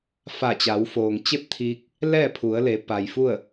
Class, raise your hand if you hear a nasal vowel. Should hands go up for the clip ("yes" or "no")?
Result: no